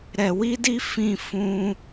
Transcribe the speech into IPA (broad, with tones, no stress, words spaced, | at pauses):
ɾɛ˨wi˧di˧ fĩ˧ fũ˦